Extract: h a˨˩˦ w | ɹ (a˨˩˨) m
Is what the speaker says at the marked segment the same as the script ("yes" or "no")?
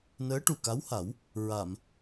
yes